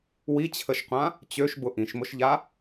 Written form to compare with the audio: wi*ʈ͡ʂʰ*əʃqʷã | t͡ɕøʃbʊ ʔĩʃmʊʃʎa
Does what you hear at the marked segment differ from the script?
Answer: yes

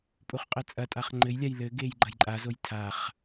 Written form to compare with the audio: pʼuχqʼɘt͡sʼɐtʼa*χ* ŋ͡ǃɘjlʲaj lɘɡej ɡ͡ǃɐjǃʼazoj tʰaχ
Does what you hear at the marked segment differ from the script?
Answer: no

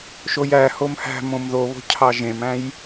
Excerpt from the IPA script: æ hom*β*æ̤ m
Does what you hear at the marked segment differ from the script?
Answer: yes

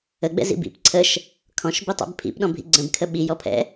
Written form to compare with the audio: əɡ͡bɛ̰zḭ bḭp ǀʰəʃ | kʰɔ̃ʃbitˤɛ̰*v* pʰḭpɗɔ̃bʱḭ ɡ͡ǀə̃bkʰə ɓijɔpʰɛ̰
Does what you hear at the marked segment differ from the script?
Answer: yes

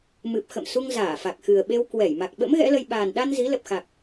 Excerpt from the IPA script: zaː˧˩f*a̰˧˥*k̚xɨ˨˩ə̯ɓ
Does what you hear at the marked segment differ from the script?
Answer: yes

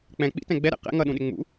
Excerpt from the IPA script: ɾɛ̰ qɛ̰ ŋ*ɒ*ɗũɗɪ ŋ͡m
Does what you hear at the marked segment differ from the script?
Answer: yes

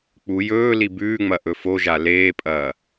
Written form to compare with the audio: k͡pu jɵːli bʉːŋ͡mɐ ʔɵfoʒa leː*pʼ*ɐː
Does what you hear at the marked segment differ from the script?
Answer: no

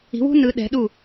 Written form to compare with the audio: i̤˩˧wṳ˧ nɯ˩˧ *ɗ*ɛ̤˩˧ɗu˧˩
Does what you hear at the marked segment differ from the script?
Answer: no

